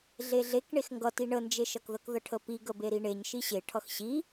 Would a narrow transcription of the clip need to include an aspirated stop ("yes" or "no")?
yes